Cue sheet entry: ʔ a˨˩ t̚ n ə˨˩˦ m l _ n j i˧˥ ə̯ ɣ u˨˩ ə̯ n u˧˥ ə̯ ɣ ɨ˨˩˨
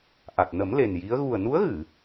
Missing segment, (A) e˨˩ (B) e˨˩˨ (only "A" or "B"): A